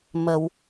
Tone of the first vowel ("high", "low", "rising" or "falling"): low